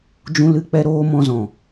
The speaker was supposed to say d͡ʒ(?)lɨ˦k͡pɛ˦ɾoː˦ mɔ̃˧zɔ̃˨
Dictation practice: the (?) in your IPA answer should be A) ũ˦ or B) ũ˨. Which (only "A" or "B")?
A